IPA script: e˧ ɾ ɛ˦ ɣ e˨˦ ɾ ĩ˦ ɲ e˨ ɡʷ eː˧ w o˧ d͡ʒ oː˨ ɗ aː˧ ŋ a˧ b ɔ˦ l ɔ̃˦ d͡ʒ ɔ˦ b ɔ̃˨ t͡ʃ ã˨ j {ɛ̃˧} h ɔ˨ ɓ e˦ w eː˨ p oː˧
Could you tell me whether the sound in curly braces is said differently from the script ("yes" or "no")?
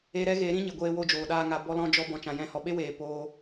no